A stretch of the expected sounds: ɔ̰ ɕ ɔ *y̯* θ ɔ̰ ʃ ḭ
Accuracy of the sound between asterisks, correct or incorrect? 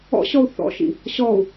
incorrect